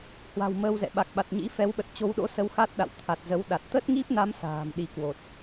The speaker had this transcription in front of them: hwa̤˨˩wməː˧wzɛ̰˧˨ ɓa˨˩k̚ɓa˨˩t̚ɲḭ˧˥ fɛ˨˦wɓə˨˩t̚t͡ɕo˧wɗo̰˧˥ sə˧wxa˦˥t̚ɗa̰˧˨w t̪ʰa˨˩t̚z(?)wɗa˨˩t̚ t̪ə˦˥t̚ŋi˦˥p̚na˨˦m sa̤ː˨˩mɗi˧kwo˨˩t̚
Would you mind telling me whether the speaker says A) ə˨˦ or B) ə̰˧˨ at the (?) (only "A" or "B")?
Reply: A